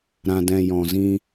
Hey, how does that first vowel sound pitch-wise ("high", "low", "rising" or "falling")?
low